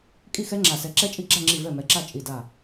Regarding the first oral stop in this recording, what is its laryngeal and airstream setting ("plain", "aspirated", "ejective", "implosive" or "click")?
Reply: ejective